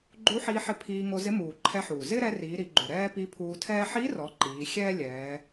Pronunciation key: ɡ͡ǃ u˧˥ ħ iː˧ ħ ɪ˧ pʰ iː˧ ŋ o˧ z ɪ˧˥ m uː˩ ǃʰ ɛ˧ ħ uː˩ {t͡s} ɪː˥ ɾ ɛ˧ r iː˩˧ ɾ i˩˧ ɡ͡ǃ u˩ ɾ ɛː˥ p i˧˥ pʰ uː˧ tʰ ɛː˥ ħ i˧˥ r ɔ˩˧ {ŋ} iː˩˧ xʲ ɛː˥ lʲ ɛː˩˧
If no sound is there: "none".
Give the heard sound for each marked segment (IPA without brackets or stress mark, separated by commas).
z, ǃ